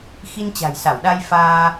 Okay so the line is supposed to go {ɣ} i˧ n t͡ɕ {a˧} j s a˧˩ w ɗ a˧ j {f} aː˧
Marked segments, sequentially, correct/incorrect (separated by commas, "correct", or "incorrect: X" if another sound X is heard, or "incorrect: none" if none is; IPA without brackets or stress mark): incorrect: x, incorrect: a̤˨˩, correct